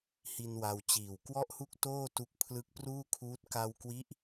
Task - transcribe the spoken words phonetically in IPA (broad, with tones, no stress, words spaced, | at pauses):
hi˧n wa˧wt͡ɕiː˨˩w kwɔ˥˩ʔhu˥˩k̚ toː˥˩tu˦˥k̚ pʰlɯ˦˥k̚pruː˥˩kʰuː˦˥t̚ ka˧wkwi˦˥ʔ